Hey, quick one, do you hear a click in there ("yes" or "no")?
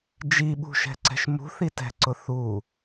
yes